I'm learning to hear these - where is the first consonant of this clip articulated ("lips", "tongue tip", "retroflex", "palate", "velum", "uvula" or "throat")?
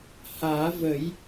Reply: throat